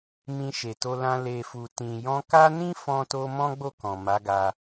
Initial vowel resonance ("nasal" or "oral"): nasal